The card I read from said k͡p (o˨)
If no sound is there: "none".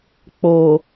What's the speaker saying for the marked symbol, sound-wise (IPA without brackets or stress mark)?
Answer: oː˨